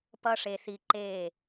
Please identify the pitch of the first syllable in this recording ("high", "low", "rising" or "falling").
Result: high